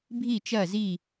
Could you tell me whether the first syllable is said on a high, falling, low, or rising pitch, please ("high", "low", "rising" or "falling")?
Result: falling